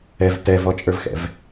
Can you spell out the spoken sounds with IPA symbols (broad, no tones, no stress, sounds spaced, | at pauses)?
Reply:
ɛ v t ɛ v ɔ t͡ʃʼ ə˞ v x ɛ̰ v